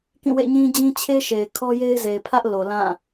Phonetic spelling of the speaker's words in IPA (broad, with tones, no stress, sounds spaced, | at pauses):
k ĩ˦˨ w ḛ˦˨ ɲ ĩ˦ d͡ʑ ĩ˦ t͡ɕʰ e˦ ʃ e˨ ɪ̯ kʰ ɔ˦ j e˦ ɪ̯ z e˨ ɪ̯ pʰ ä˦ ʔ l o˨ l ã˦˨